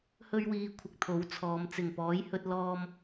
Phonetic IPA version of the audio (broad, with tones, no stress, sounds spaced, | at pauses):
h ɵ˥ ɥ w iː˧ kʷʰ ɪ˧ k̚ t̪ʰ o˨˥ w t͡sʰ ɔː˨˧ m t͡s ɪ˨˩ ŋ p ɔː˨˥ j h ɵ˥ t̚ l ɔː˧ m